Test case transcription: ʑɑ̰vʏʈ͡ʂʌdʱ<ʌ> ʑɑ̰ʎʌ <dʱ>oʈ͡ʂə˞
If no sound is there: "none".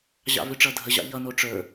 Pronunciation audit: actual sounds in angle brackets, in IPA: ə, n

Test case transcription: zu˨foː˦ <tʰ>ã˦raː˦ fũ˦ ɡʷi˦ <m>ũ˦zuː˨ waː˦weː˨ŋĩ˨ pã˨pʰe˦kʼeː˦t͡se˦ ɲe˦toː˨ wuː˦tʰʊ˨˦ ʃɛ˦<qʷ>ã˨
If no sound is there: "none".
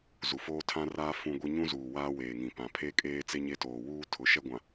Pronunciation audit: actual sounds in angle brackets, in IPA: tʰ, ɲ, ɡʷ

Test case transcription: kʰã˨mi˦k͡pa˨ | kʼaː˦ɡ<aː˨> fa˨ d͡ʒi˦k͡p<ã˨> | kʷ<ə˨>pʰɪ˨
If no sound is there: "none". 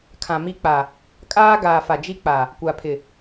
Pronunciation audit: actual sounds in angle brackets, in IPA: aː˨, a˨, a˨

